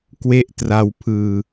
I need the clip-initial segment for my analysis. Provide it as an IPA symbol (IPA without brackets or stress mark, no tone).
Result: k